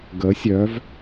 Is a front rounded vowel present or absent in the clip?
present